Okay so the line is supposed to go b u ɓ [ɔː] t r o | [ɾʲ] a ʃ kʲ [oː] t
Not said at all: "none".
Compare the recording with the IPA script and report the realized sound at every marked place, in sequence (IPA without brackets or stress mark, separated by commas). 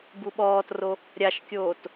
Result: ɔː, ɾʲ, oː